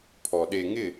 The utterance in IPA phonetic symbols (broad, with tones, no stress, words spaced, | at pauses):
pʰɔ˨ ɗe˨ŋɪ˦˨